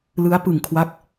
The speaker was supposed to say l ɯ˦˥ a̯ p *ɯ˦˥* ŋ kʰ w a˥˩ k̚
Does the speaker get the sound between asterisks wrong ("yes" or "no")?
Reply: yes